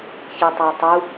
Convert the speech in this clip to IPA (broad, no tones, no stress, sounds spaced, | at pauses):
ç e tˤ æ tˤ u